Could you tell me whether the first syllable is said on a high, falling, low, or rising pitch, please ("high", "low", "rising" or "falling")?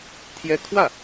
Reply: high